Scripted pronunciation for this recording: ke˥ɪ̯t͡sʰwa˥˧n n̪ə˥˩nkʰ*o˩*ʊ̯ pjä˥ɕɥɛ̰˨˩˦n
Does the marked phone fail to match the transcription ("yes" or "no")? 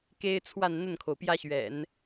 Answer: no